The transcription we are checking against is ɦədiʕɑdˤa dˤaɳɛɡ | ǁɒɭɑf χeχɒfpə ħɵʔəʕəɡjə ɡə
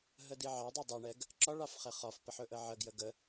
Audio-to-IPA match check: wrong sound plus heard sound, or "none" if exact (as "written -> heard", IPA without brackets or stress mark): none